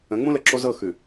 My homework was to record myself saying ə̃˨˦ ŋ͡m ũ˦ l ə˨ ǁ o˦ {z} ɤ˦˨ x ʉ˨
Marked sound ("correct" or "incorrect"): correct